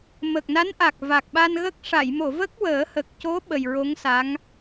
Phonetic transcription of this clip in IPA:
mə˨˩k̚na˧˥n ʔa˨˩k̚ va˨˩k̚ɓa˧nɣə˦˥k̚ ʂa˨˩˨jmo˨˩˨ və˦˥k̚wəː˨˩˦hə˨˩k̚co˧˥ ɓə˨˩jɹo˧˥ŋsa˧˥ŋ

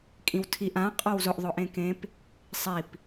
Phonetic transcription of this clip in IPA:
kʼĩwtʰiʔ ã qʼɔwzʊʔ ðˤʊʔẽkẽp | sˤip

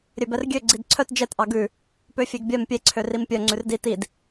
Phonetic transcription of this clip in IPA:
ɾʲøbɛrɡʲø ɡ͡ǀidǀʰœt d͡ʒɛtʔɑ ɡʉ | pøfʲeɡbʲœm pʲeǀʰø rimpʲœ ŋ͡ǀʉrdi tid

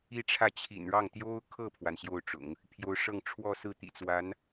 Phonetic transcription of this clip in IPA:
i˥˧ʈ͡ʂʰä˥˩ t͡ɕʰḭ˨˩nɻɑ˥˩ŋ t̪jo˥ʊ̯kʰɤ˥˩pʰwa˩n ɕjo˥˩ʊ̯ʈ͡ʂʊ̰˨˩˦ŋ | pʰjo˧˥ʊ̯ʂɤ˥˧ŋ ʈ͡ʂʰwɔ˥˧sɹ̩˥˩ t̪ḭ˨˩t͡swa˧˥n

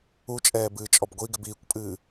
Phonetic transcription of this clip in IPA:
ut͡ʃʼɛːbɨːt͡ʃʼɔb ɡʷiɡɪb iːkʷpʼɨː

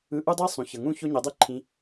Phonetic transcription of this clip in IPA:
ɯ˧ʔu˦dˤi˦ sˤũ˨çʌ˨ ŋũ˦˨ ço˦ɲɛ˨˦dˤe˦ǃʰĩ˧

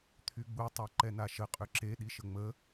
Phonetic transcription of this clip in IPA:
t̪ʰyɡ͡bu tˤaǃɛnaʃə qʼøǁe ɗiʃəŋ͡mə

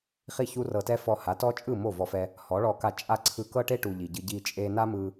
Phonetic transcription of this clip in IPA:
χi˦˨çu˦rɤ˧tɛ˦ fɔ˧ha˨˦tɔ˦t͡ʃʼɯ˦˨ mo˦˨vɔ˧fɛ˧ | hɔ˨˦ɭɔ˧ka˧ t͡ʃʼa˧ ǀʰɯ˧kɤ˦ʈe˦ ʈu˨ ʎi˨ɟɯ˧ ɟi˧t͡ʃʼe˧ na˦mɯ˧

